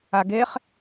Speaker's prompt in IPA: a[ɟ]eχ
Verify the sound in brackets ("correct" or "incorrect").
incorrect